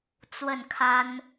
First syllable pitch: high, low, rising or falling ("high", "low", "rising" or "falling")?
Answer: falling